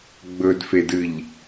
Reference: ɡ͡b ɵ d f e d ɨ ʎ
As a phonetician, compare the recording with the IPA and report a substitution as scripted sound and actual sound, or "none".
none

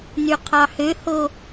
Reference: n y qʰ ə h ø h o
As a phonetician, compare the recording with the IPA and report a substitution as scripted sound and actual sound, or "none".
ə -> ɑ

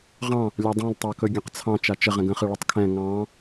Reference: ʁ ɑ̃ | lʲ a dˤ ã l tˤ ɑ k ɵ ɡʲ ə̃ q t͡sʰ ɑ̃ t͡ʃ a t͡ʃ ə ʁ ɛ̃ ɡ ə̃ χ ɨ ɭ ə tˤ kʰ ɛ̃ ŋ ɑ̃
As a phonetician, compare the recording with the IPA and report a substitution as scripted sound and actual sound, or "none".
none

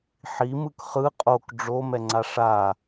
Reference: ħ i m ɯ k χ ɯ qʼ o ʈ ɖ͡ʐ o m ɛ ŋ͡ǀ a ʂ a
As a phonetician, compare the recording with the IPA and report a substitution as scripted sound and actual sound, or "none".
ʈ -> k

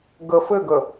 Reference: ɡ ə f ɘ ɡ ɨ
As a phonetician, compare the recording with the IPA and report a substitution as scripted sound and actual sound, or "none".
ɨ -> ə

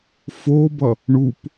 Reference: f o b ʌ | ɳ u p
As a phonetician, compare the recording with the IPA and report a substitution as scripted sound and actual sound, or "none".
none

